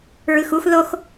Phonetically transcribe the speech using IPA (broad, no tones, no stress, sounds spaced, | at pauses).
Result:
ɹ ɯ x u x ð o x